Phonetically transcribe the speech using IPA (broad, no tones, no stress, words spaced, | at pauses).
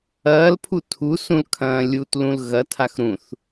ɐːlpʰu tʰu sũlkʰɐ̃ːlʲutlũl ɣɐ tʰaxɾũθ